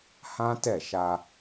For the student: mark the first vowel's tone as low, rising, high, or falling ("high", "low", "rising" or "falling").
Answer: high